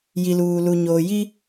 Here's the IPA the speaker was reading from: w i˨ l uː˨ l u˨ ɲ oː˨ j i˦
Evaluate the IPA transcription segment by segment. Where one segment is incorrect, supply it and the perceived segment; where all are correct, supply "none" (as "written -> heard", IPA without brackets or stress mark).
w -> j